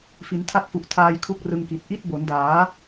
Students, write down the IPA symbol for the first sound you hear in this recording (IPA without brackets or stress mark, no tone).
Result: f